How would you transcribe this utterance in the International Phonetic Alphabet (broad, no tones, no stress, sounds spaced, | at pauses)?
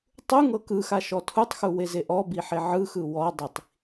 tˤ u ŋ ɤ k ɯ x a ʃ ɔ tʰ u tˤ x u w e z e ʔ ɔ b i ħ e ʕ ɯ x ɯ w ɔ dˤ i tˤ